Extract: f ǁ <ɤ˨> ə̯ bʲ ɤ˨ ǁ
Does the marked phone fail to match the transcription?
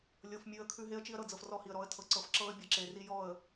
yes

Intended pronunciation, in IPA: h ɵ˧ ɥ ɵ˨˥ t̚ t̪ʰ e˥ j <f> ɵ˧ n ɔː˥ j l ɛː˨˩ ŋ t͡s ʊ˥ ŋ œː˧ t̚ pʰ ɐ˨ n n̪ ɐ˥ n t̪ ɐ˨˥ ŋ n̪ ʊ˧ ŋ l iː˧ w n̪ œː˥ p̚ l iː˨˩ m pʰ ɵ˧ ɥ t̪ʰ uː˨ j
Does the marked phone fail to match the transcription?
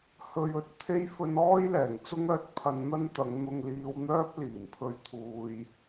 no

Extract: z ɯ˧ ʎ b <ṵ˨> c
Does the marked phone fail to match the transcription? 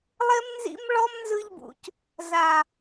no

